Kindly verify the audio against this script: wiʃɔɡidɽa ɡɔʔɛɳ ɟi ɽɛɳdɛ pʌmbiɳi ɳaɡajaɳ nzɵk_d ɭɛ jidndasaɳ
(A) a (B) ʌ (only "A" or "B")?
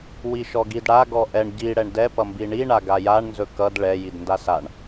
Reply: B